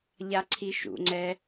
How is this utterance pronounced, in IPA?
ʎ a ǀʰ i ʃ ṵ ŋ͡ǀ ɛ

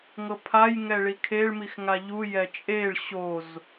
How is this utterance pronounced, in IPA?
ŋ ɤ pʰ a j ŋ ɛ ɭ i kʰ e ɭ m i x ŋ a ʎ u j ɛ t͡ʃʼ e ɭ ɕ o z

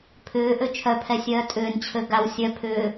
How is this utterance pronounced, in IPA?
pʰ ʏː ʔ ø t͡ʃʰ œ pʰ ɛ sʲ œː tʼ ʏː n t͡ɕʰ ø ɡ a w sʲ œ pʰ ʏː

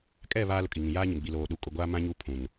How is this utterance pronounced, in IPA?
kʼ ɛ˦˨ β aː˦ l ʊ˨ kʼ i˨ ŋ ĩ˨ j aː˦ ɲ ɪ˨ m ɡ͡b i˨ l oː˨ ɗ u˨ kʼ ʊ˨ ɡʷ aː˦ m ã˦ ɲ u˦ pʰ ũ˨ n

